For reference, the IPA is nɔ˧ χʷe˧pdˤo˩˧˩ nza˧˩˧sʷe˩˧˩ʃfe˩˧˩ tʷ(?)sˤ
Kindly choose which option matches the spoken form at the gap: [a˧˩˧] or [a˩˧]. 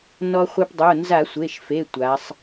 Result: a˩˧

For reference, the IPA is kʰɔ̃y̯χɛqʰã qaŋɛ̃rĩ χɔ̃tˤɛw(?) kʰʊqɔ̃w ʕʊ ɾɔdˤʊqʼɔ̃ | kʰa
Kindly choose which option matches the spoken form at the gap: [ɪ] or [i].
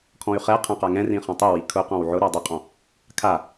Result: i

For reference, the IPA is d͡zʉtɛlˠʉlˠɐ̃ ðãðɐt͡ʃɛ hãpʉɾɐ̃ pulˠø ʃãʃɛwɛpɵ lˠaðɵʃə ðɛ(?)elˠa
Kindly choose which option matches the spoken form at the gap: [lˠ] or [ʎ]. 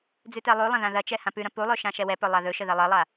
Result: lˠ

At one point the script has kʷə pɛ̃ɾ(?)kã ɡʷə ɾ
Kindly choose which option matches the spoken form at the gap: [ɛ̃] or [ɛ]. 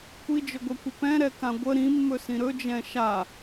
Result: ɛ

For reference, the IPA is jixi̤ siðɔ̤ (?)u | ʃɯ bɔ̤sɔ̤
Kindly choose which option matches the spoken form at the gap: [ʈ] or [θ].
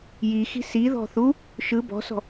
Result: θ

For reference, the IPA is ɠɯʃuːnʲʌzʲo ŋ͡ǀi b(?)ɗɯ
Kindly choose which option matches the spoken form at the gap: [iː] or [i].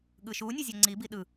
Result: i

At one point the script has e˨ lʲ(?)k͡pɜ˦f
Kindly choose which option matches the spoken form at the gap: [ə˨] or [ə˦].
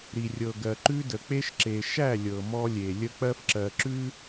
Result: ə˦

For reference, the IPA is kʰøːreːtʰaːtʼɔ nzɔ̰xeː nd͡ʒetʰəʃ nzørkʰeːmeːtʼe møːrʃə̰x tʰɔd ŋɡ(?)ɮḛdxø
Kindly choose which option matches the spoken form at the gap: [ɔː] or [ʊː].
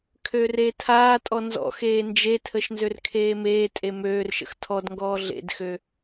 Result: ɔː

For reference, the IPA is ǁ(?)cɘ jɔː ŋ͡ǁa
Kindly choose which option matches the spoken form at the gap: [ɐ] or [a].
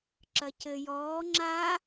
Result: ɐ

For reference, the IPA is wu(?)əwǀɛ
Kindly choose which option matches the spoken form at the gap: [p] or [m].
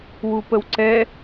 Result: p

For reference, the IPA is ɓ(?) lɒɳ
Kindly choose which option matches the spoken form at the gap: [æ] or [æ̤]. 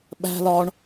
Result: æ̤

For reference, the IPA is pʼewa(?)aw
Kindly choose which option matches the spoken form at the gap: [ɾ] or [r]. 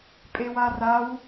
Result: r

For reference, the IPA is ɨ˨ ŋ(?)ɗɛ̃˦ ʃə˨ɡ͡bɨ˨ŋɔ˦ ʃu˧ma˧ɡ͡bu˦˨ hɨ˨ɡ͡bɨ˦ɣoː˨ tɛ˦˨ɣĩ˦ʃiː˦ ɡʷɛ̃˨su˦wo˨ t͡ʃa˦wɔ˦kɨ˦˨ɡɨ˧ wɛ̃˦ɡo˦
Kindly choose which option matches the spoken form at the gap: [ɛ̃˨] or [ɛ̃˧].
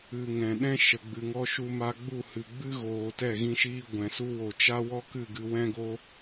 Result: ɛ̃˨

